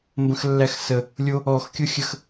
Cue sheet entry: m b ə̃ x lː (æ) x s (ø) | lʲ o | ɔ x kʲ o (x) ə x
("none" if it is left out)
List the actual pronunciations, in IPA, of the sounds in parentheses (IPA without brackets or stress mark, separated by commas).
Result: æ, ə, xʲ